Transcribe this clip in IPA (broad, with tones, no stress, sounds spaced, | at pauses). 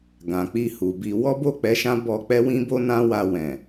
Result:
ɡ ã˨ k͡p i˧ h u˨ b i˧ w ɔ˦ b o˦˨ k͡p ɛ˧ ʃ ã˦ b ɔ˧ k͡p ɛ˦ w ĩ˦ b o˦ n ã˦ w a˧ w ɛ̃˨